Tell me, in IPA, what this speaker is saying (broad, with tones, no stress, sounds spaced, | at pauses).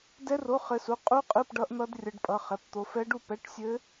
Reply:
d ɛ˦˥ r o˧˥˧ χ ɘ˦˥ s u˧˥˧ qʼ u˦˥ qʼ ɯ˧˥˧ p ɖ ʌ˦˥ ʔ n̪ ʌ˦˥ d rʲ ʌ˦˥ ɖ pʼ ʌ˧˥˧ χ ɛ˧˥˧ p t̪ o˦˥ f ɛ˦˥ ɖ u˥˧ p ɛ˧˥˧ ʈ sʲ ɘ˦˥